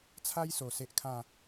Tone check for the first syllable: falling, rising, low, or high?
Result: high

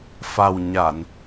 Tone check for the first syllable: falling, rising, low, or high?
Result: low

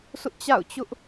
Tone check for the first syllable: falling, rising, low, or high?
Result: high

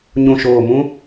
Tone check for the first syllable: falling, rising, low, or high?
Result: low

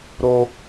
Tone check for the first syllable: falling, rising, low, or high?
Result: high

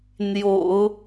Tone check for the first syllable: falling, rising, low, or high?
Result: low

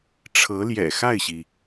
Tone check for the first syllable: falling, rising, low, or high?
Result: rising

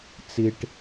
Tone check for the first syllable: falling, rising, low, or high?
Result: low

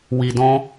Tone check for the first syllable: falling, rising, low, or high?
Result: low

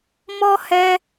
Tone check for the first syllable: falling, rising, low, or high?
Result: high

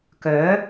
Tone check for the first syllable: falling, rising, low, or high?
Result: rising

